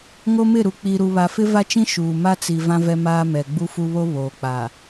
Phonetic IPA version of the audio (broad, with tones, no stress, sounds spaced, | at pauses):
ŋ o˦ m ɪ˦˨ ɾ u˨ k͡p i˨ ɾ u˨ β a˨ f ɪ˦ v a˦ t͡ʃ ĩ˦ ʃ uː˨ m a˦ t͡s i˨ v ã˦ v ɛ˦ m aː˦ m ɛ˨ ɡ͡b u˦ f u˦ β o˦ β oː˨ k͡p a˨